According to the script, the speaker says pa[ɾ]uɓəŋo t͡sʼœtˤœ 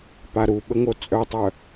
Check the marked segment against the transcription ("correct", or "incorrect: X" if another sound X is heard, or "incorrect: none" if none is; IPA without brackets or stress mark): correct